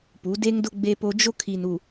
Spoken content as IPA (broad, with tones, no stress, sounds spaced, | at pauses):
p u˨˦ d e˦ ŋ d ʊ˦ ɡ͡b e˦ p o˦ d͡ʒ o˦ kʰ i˨ n u˨